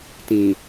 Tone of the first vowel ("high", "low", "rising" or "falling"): low